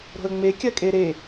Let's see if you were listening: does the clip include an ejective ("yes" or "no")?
yes